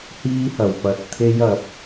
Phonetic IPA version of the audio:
h iː˥ h ɐ˨˩ w p ɐ˨˥ t̚ t̪ʰ e˥ j ɐ˨˥ p̚

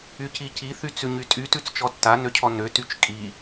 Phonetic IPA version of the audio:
y c i c i θ y t͡s ʉ ɲ y tʼ y t ʉ t͡s t͡ʃ ɔ tː a n ø cʰ ɔ n ø t y t͡ʃ kʼ i

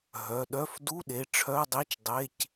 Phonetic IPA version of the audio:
ɦ œ˩˧˩ ɗ œ˧˥˧ f d u˧˥˧ ɗ e˩˧˩ ʈ͡ʂʰ œ˧˥˧ dˤ i˧˥˧ t͡ʃ dˤ e˧˥˧ c

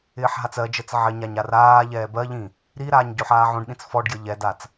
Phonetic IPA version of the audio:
ɪː ħ ɦ a t͡s ɜ d͡ʒ əː t͡s ʕ ɪ ɲ a ɲ a r aː ʎ ɛː b ɜ ʎ ĩ | ɾ i ɾ aː ɲ ɟ o ħ aː ʕ õ ɖ ɗ ĩ t͡s f ɔ ɖ ɡ j ə ʎ ɛ d a t͡s

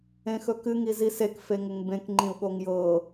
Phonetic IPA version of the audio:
ẽ x ɵ k ɨ ŋ i z i s e k f e ŋ ɪ ŋ b ẽ k ŋ͡ǃ ĩ u̯ ɠ o ŋ j ɤ

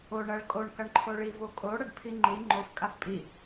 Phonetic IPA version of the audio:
o ɳ ɐ ɭ kʼ o ɳ k ɐ ɳ ǃʰ o ɭ i v o kʼ o ɽ ɐ ɖ pʰ i ŋ͡ǃ i ŋ͡ǃ o f kʼ a f pʼ i

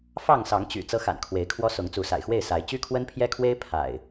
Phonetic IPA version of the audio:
f ɑ˥˨ ŋ s ɑ˨˦ ŋ t͡ɕ y̰˨˩ t͡s ɤ˦ x a̰˨˩ n kʰ w e˨˦ ɪ̯ kʰ w ɔ˦ s ʊ˨˦ ŋ t͡s u˨˦ s a̰˨˩ ɪ̯ x w e˥˨ ɪ̯ s a˨˦ ɪ̯ t͡ɕ y˦ kʰ w ə˦ n pʰ j ɛ˦ kʰ w e˦ ɪ̯ pʰ a̰˨˩ ɪ̯

